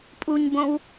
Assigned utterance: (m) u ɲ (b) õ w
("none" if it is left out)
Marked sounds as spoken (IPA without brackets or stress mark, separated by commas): pʼ, b